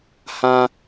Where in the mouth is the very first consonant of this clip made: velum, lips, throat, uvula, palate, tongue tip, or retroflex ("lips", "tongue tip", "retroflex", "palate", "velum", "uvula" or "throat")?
throat